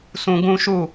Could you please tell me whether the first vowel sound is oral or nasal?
nasal